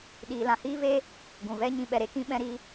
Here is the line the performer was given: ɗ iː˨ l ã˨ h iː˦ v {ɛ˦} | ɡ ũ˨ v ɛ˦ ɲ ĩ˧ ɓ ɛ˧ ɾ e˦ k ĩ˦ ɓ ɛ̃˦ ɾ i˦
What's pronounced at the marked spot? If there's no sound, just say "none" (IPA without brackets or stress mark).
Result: e˦